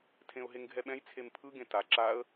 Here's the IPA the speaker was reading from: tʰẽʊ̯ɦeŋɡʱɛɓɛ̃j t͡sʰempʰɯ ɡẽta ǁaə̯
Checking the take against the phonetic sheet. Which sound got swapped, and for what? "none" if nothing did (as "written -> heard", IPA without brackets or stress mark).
none